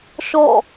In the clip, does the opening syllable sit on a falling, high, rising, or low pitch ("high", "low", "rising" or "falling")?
falling